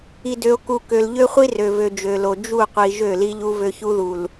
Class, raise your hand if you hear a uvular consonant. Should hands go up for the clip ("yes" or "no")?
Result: yes